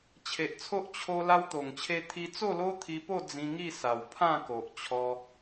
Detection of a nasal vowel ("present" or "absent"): present